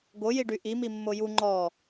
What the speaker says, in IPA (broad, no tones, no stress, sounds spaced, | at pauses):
ɡ o j i ɖ y ʔ i m i mː o j u ŋ͡ǃ ɔ